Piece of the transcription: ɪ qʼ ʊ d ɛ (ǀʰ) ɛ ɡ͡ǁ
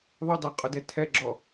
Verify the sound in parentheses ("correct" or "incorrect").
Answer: incorrect